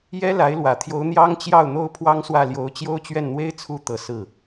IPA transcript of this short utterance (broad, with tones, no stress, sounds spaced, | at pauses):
j ɛ˥ l a˧˥ ɪ̯ l w ä˨˩ t̪ʰ j o˧˥ ʊ̯ n̪ j ɑ˥ ŋ t͡ɕ j ɑ˥˩ ʊ̯ n̪ o˥ ʊ̯ pʰ w ɑ˥ ŋ s w ä˥˩ l j o˧˥ ʊ̯ t͡ɕ j o˥ ʊ̯ t͡ɕ ɥ ɛ˥˩ n n̪ w e˥ ɪ̯ t͡sʰ u˧˥ t̪ ɤ˨˩ s ɹ̩˥˩